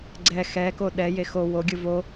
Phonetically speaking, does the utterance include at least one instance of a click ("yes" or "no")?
yes